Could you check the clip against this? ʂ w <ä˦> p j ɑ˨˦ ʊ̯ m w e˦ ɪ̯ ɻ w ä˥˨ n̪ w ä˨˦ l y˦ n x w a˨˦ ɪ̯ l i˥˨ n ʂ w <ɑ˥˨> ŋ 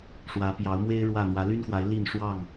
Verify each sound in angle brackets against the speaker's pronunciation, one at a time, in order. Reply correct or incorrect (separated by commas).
incorrect, correct